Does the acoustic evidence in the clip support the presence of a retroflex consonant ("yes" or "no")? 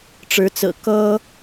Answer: yes